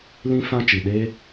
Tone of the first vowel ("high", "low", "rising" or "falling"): high